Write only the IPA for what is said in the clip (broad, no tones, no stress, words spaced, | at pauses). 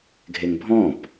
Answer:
ɡʱeŋbʱɔ̃p